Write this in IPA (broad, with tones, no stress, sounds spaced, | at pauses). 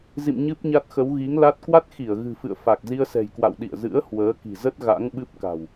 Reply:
z ḭ˧˨ m ɲ ɨ˦˥ p̚ ɲ a˦˥ t̚ x ə˨˦ w ɣ i˨˦ ŋ l a˦˥ t̚ k w a˦˥ t̚ x i˧˩ ə̯ ɣ ɨ̤˨˩ f ɨ̰˧˨ ə̯ f a˨˩ k̚ z i˧ ə̯ s ɛ̤˨˩ j k w a̰˧˨ w ɗ ḭ˧˨ ə̯ z ɨ̰˧˥ ə̯ h w əː˨˦ k i̤˨˩ z ə˦˥ t̚ ɣ a̰˧˥ ŋ ɓ ɨ˦˥ p̚ k a̤˨˩ w